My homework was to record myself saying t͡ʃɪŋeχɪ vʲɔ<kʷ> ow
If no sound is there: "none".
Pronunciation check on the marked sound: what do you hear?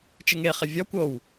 kʷ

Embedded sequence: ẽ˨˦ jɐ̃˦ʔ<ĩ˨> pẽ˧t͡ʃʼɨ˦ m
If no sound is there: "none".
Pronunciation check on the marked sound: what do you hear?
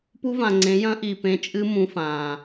i˨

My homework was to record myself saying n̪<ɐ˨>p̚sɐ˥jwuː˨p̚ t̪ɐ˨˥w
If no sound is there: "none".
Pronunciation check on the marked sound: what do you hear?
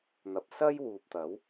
ɐ˨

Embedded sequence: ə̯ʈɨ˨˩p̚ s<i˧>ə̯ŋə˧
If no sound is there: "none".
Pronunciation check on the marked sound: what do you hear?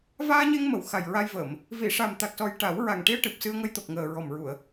ɨ˧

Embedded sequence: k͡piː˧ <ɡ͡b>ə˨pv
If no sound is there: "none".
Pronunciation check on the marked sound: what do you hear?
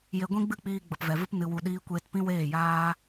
ɡ͡b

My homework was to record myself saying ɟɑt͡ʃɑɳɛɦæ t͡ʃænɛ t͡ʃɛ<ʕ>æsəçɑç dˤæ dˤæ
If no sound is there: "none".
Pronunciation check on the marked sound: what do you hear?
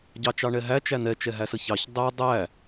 ɦ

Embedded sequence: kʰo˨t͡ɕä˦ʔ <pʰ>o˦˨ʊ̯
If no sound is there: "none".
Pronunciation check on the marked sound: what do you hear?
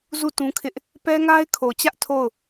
tʰ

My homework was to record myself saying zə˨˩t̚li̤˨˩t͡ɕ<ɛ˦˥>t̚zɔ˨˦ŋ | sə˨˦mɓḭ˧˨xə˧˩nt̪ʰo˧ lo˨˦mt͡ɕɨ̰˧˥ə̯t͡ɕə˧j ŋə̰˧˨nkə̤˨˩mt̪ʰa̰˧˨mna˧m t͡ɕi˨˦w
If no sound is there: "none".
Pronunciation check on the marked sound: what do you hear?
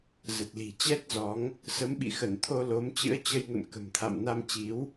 ɛ˦˥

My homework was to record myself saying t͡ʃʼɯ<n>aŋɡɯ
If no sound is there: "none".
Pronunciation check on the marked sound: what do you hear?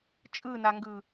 n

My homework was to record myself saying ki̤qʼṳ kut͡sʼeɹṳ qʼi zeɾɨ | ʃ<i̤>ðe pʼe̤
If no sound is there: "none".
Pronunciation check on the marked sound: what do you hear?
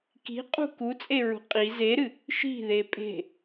i̤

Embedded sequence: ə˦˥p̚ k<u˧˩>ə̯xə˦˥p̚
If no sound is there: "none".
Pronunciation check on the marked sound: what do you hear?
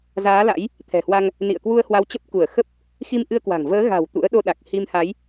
u˧˩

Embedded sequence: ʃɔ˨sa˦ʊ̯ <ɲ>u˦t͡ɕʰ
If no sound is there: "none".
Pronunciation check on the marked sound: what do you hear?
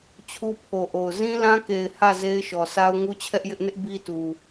ŋ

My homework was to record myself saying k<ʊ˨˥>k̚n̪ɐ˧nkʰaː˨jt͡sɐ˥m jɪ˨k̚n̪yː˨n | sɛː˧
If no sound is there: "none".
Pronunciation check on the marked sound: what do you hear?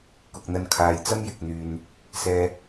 ʊ˨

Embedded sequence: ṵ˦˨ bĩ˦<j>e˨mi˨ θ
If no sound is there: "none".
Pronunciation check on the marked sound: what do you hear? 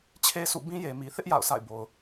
j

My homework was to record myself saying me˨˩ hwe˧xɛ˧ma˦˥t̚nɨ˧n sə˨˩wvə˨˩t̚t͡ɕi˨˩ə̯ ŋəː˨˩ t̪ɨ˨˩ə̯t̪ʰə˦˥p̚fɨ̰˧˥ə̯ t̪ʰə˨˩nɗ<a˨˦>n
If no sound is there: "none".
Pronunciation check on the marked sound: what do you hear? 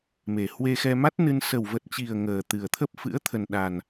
a˨˩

